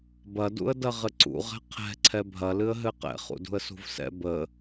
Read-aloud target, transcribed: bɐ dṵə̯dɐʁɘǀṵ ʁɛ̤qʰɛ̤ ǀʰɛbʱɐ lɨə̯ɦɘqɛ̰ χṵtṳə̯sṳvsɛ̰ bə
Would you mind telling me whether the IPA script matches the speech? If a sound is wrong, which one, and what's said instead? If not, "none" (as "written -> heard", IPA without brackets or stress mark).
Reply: t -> d